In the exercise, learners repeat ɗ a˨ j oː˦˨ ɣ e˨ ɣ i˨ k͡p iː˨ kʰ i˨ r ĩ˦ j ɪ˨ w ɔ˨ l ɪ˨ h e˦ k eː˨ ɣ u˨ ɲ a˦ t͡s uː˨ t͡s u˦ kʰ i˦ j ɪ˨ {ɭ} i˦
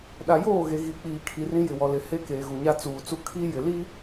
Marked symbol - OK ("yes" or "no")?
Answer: no